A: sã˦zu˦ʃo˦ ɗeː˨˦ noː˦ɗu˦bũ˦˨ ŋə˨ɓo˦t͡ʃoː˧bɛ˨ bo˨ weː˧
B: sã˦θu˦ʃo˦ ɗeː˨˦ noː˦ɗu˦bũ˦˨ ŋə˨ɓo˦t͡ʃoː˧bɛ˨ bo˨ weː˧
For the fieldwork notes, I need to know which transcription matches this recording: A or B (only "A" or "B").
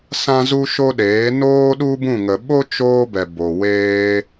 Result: A